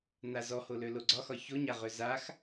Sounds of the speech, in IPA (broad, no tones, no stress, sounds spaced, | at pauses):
n a z ɔ h o l ø l o ɡ͡ǀ ɒ x ɒ ç o ɲ a ʁ ø z a x